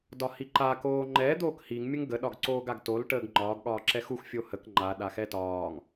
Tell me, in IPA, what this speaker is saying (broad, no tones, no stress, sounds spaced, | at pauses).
d ɒ h i ǃ a k oː ŋ͡ǃ ɛ d̪ oː k h i ŋ mʲ ə ŋ ɡ ə ɗ ɒ ɡ ǀ oː ɡ a ɡ t o l ʈ əː ɡ ŋ͡ǃ ɒː ɡ ɠ ɒː ǁ ɛ x u x fʲ o h ə k ŋ͡ǃ a ɗ a x ɛ t ɒː ŋ